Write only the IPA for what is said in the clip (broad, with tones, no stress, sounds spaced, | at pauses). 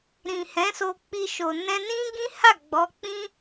ɾ ĩ˨ h ɛ̃˨˦ s o˧ k͡p i˧ ʃ o˨ n ɛ̃˧ n ĩ˦ ɡ ĩ˦ h a˦˨ ɡ͡b ɔ˨˦ k͡p ĩ˦